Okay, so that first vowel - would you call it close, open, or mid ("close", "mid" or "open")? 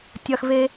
open